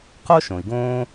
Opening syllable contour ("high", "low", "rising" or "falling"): high